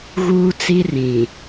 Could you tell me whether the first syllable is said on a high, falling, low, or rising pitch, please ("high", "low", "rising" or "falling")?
high